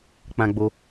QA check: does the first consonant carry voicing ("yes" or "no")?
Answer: no